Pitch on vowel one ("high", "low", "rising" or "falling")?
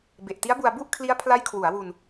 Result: low